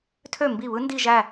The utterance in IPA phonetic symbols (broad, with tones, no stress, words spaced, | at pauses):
tʰø˥˩mbi˥˩βɯ˥ ndi˥˧ʒæ˥˧